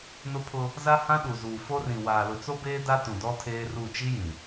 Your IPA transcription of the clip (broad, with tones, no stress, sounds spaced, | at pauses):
n ʊ˦ pʰ ʊ˦ | z a˦ h ã˦ ɗ u˨ z uː˨ f o˦ r ĩ˨ w aː˨ l ʊ˨ t͡s o˦ b eː˦ d a˦ t ũ˨ d ɔ˦ tʰ eː˦ r u˦˨ t͡ʃ i˦ j ĩ˨